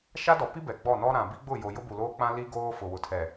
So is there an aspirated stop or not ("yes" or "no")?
yes